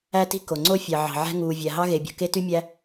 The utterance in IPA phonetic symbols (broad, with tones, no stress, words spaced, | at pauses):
æ˦ti̤˦ ko˩ŋ͡ǀo˦ fʲɑ˩ʕɑ̤˩ ʕæ̤˦ ŋuː˩vʲæ˩ ɦɑ˦ɣe˩bʲo̤˩ ke˦ty˦mʲæ˦